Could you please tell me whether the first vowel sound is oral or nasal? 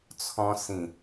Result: nasal